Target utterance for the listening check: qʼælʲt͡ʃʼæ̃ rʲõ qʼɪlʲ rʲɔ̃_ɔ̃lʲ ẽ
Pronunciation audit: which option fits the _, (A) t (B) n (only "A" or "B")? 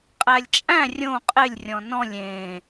B